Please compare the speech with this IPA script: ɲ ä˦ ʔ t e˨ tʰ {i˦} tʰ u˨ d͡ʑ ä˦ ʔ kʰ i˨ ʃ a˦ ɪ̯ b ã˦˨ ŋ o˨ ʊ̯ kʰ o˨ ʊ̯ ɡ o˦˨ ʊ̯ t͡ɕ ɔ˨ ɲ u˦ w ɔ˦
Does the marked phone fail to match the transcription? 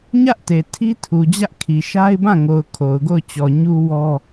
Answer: no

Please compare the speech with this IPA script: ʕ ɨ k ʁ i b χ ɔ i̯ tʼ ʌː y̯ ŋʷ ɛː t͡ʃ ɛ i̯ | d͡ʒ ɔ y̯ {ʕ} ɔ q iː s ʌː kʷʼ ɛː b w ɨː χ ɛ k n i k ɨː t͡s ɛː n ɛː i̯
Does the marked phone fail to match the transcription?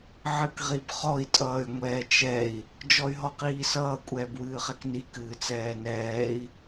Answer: yes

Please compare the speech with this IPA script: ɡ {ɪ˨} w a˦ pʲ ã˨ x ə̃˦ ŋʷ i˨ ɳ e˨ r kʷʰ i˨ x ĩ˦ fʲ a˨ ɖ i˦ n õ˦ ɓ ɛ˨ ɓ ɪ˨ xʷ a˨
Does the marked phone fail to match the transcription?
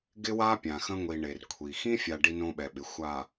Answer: yes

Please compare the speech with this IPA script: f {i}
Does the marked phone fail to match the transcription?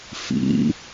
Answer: yes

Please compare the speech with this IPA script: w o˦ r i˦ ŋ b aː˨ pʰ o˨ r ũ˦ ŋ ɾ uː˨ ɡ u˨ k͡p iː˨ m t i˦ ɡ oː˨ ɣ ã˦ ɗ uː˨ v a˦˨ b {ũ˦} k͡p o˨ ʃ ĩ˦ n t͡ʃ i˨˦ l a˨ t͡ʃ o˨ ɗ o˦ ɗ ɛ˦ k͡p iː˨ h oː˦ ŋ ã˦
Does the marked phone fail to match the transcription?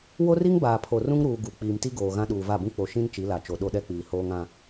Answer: no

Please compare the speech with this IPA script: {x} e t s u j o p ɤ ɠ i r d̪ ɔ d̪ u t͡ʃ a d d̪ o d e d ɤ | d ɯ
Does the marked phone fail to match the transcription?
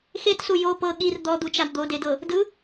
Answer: no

